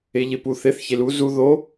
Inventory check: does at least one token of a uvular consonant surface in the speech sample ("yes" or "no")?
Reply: no